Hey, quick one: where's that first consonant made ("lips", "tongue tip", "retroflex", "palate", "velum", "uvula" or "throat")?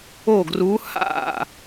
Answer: velum